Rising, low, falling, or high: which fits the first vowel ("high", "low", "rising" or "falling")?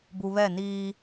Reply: low